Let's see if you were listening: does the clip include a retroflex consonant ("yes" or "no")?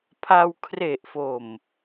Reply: no